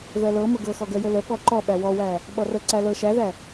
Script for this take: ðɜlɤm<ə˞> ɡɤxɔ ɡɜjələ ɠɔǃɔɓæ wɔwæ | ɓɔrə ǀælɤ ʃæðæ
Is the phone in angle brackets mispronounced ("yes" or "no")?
yes